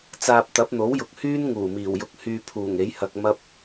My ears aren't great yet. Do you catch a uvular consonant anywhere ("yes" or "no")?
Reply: no